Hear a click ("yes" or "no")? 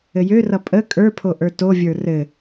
no